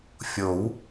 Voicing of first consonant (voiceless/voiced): voiceless